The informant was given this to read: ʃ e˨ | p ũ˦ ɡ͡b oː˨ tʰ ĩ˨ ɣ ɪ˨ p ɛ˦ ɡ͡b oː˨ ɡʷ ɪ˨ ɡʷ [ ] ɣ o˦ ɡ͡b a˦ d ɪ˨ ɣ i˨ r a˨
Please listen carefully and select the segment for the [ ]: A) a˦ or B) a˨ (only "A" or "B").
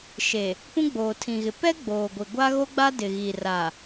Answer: A